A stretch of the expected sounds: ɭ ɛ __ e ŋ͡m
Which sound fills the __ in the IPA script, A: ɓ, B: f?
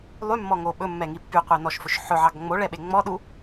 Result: A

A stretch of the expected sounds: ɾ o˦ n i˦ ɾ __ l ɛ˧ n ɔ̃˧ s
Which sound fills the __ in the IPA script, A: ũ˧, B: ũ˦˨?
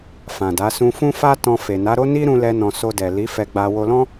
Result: A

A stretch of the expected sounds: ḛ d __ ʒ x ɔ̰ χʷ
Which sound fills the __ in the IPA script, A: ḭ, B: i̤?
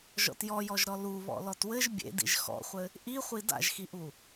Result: A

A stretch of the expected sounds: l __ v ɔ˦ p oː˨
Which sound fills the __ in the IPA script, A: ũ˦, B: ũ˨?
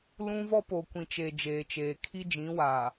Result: A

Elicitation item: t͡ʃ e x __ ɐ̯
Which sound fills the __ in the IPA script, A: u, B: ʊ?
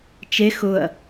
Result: B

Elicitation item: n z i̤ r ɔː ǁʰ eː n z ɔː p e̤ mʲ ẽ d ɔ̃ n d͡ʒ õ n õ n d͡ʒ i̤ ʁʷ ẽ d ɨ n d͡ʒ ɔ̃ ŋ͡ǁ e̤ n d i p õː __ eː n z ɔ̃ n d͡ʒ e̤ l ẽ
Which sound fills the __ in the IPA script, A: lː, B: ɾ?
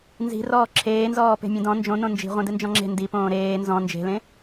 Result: B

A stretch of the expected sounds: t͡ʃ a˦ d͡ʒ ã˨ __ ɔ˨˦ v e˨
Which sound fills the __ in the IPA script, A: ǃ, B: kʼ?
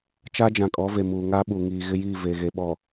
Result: B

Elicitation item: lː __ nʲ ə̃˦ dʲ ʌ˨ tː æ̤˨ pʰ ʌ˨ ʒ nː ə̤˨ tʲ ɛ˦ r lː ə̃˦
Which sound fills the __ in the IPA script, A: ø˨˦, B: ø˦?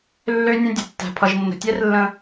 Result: B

